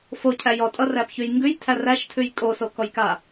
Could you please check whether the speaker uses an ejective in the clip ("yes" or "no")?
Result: yes